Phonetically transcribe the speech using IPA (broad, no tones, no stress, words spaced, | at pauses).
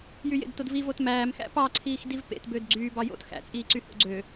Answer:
jyjḛdtodvi votmæːmxæ̰ pɑǀʰiːx divpḛtbød ɡ͡ǀyːbɑ jo̰t xæ̰t͡sʼiːǀy ho̰ɡ͡ǀø